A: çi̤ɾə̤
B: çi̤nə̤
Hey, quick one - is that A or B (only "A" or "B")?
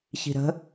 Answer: A